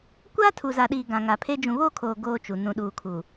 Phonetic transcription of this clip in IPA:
kʷ aː˦ tʰ u˨ z a˨ ɗ iː˨ ɡ ã˨ ŋ a˨ pʰ e˦ d͡ʒ ũ˨ β oː˦ kʰ oː˨ ɡ oː˦ t͡ʃ u˨ n ũ˨ ɗ uː˨ kʰ u˨

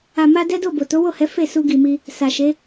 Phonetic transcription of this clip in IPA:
a˨ m a˧ d ɛ˦ d o˦˨ b o˨ t o˨˦ w o˦˨ h ɛ˨˦ f e˦˨ s u˧ ɡ i˨ m i˧ | s a˨ ʃ e˨˦

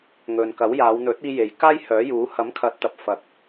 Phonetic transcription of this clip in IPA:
ŋ ɵ˨ n k ɐ˨˥ w j aː˨˧ w n̪ ɵ˨˥ t̚ iː˧ j e˨ j k aː˥ j h œː˨˥ j uː˨˥ h ɐ˨˥ m kʰ ɐ˨˥ t̚ t̪ ɐ˨ p̚ f ɐ˨ k̚

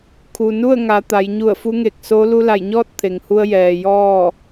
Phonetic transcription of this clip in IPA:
kʰ u˩ n u˥˨ ə̯ ŋ a˩˧ t̪ a˩˧ j ɲ u˧˩ ə̯ f u˧˥ ŋ e˧˩ k̚ s o˧˥ l u˧ l a˧˩ j ɲ ɔː˥˨ t̚ t̪ʰ e˩ ŋ h u˧ ə̯ j ɛː˩ j ɔː˥˨

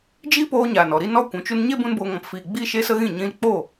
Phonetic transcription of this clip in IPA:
d͡ʒ iː˦ p oː˧ ɲ aː˨ n ɔ˨ ɾ i˦ n ɔ˦ kʷ ũ˨˦ t͡ʃ u˦ n ɲ e˦ b ũ˦ n b oː˧ ŋ ɔ̃˨ p f iː˨ ɡ͡b i˦ ʃ e˦ s ə˦ ɣ ĩ˦˨ ɲ ĩ˧ l k͡p o˦˨

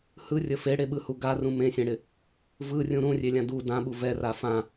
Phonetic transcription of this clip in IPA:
h ɯ rʲ ə f e ɽ e ɓ ɯ h u ɡ a r ũ m ẽ sʲ ẽ ɽ ɪ | v ɯ rʲ ũ ɾ ũ rʲ e lʲ ã d u d ã ɓ u v ɛ r a f ã

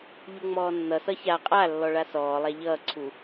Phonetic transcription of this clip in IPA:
ʎ u ŋ͡m ɔː nː ʌ s ʌ ç a qʼ a lː ɔ ɭ a s ɔː lˠ a ʎ ʌː ǀʰ u

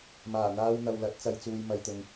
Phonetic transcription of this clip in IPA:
m aː˨˩ n̪ aː˧ w n̪ ɐ˨ w l ɐ˨˥ t̚ t͡s ɐ˧ j t͡s uː˧ j m ɐ˨ j t̪ ʊ˨ ŋ

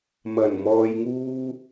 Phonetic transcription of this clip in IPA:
m ɐ˨˩ n m ɔː˧ j ŋ uː˥

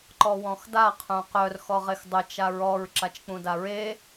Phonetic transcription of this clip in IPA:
ǃ ɔ w ɔ̃ x d a qʰ œ̃ q œ r x ɔ ʁ e x dˤ ə t͡ʃ a ɹ ɔ ɹ ǁ a t͡ʃ k͡p ũ d a ɹ e

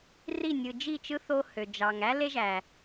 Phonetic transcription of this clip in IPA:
r i˦˨ nʲ ɯ˨ d͡ʒ i˦˨ t͡ʃ ɯ˦ θ o˦ h ø˨ d͡ʒ ɑ˨ ŋ æ˦ l e˦ ʒ æ˨

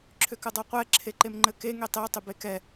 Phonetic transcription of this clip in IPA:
ǁʰ ʏ k ə dˤ œ qʷ ɛ ǁʰ e ǃ e m ŋ͡ǃ ɘ k e ŋ e tˤ e tˤ ʏ b e k ɛ

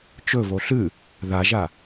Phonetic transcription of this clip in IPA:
t͡ʃ ɵ v o ɬ ɨ | ð a ʒ a

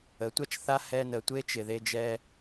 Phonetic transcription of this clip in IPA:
ə˨˦ tʷ a˦ t͡ʃ θ a˦ h ɛ˧ n ə˨ tʷ e˦ t͡ʃ ɪ˨ ð e˧ d͡ʒ ɛ˧

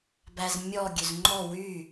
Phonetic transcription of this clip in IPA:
b æ z mʲ ɔ ɡʲ ø z ŋ͡ǃ ɔ w y

